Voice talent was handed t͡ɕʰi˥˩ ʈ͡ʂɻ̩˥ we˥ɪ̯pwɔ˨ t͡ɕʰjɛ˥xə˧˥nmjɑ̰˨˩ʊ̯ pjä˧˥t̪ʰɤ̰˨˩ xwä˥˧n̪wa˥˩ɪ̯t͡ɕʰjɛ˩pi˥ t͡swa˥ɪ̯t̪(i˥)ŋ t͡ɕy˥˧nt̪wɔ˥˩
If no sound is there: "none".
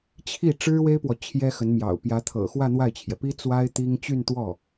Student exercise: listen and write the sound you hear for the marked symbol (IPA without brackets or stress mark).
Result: i˥